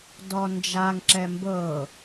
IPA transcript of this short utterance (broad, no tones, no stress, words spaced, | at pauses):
dɔnd͡ʒaŋǁɛ mbɤ